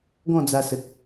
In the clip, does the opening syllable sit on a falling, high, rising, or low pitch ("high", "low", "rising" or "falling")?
falling